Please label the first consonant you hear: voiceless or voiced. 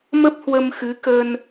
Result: voiced